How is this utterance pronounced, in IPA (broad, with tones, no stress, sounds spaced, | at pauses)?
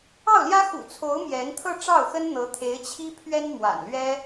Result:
ɑ˥˩ ʊ̯ l j ä˥ x ṵ˨˩ t͡sʰ o˧˥ ʊ̯ m j ɛ˧˥ n t̪ʰ ɤ˥˧ ʈ͡ʂ ɑ˥˩ ʊ̯ x ə˥ n n̪ ɤ˧˥ t̪ʰ e˧˥ ɪ̯ t͡ɕʰ i˥ pʰ ɥ ɛ˥ n m w a̰˨˩ n l ɥ ɛ˥